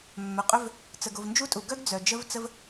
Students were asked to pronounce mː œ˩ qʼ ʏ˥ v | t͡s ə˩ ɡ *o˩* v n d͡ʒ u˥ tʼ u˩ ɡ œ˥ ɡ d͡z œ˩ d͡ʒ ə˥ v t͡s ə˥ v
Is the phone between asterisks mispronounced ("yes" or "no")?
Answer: no